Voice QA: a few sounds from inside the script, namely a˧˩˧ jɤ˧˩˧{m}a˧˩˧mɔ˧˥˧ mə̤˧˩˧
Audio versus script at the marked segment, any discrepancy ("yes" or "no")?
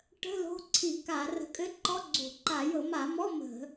no